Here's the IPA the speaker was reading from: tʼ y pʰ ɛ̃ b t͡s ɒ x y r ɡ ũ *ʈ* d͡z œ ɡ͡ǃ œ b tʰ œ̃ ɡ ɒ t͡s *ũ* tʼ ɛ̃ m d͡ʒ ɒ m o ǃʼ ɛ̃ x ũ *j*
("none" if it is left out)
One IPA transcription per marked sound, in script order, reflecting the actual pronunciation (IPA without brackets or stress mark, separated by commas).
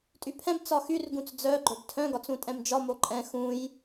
t͡s, ũ, j